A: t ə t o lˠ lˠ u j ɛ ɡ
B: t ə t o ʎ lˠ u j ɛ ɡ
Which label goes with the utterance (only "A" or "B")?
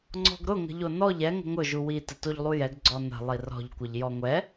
B